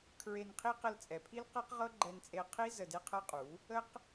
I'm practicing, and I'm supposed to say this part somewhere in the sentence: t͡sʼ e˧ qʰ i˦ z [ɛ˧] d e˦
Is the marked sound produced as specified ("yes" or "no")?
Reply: no